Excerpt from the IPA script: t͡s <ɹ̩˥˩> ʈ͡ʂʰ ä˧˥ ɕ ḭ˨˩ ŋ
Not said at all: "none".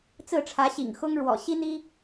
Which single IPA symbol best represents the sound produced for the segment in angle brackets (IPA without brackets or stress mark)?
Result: ɹ̩˥˩